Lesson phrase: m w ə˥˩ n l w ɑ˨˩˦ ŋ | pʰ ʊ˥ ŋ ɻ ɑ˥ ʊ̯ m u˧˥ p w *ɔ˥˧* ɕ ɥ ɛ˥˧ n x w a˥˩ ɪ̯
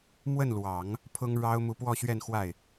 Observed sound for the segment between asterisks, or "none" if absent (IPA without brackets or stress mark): ɔ˥˧